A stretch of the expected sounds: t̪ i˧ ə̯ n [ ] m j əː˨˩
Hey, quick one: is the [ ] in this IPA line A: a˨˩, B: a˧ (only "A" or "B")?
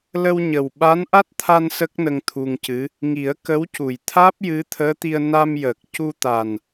B